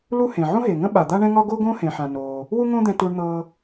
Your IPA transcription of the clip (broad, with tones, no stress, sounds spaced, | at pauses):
l u˥ h ẽ˩ ʕ õ˥ ɦ e˩ ŋ ə̃˥ ɓ a˩ d̪ a˥ ɳ ɛ̃˥ ŋ ɒ˥ ɡ o˥ ɡ õ˥ h ẽ˩ ħ ã˩ n oː˩ | w u˥ ŋ õ˥ d̪ ɛ̃˧ t u˧ ɳ n̪ ɤː˧